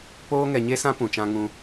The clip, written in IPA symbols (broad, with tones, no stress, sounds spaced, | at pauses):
p oː˦ ŋ ɛ˧ ɲ e˦ s ã˦ p ũ˨ t͡ʃ ã˧ ŋ ũ˧